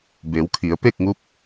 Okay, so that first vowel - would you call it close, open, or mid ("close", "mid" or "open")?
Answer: mid